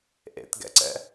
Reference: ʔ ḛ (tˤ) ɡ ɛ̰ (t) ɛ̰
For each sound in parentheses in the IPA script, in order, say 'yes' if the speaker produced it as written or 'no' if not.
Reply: no, no

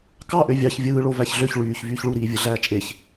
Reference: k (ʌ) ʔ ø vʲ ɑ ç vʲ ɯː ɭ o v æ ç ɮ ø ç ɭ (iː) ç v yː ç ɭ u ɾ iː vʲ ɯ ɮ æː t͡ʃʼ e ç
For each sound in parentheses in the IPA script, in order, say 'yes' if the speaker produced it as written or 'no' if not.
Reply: no, no

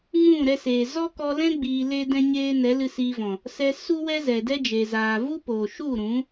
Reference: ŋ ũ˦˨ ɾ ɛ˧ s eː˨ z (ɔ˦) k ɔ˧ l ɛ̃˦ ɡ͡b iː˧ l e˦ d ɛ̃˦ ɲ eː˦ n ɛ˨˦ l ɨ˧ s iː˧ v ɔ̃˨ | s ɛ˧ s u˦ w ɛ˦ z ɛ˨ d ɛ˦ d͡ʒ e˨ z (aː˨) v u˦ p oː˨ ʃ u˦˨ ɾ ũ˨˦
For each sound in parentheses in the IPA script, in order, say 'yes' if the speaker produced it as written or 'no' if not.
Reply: yes, yes

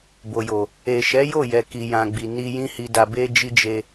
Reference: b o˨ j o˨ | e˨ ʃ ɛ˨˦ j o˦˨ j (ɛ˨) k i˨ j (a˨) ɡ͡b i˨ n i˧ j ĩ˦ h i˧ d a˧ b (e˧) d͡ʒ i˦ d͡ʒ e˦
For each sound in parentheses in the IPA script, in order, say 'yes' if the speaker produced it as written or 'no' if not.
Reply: yes, no, no

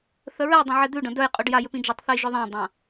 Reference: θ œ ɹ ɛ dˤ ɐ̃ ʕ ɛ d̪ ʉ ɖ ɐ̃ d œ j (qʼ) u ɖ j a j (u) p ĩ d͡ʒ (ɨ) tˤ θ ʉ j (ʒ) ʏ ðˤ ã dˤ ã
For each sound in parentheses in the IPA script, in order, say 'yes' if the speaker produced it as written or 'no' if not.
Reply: yes, no, no, yes

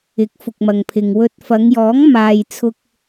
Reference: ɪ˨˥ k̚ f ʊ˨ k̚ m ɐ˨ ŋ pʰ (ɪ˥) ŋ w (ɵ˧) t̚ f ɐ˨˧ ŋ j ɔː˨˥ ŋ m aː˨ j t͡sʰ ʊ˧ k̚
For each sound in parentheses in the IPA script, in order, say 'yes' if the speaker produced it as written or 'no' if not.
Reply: no, yes

